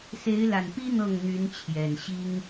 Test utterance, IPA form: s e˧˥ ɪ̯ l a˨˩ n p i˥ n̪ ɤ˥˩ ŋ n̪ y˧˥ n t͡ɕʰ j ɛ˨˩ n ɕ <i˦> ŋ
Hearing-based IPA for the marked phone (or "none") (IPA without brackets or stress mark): i˥